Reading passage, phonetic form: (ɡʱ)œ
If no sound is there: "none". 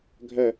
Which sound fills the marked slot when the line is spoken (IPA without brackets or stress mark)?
ɡʱ